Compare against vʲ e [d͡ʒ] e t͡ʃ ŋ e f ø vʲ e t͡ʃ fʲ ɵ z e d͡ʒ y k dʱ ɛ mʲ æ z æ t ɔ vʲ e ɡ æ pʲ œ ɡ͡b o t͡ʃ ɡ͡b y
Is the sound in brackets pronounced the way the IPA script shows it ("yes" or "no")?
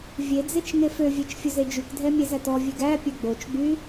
no